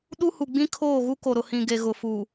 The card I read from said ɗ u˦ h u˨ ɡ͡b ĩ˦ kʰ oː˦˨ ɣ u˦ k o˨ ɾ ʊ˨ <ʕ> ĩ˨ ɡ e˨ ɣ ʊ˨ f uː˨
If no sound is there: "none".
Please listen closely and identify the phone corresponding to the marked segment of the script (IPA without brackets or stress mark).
h